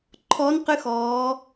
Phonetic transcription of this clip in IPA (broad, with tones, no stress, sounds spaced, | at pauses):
ǃʰ ɔ˧˥ n q ɨ˧˥ x ɔː˩˧